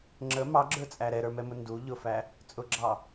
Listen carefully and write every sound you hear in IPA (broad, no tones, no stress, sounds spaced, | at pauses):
ŋ͡ǁ ə m ɑ ɡ͡ǁ ə˞ t͡sʼ æ ɾ ɛ ɾ ə˞ m ɛ m ʊ n d u ʎ ʊ f æ | t͡sʼ ʊ ɡ͡ǁ ɑ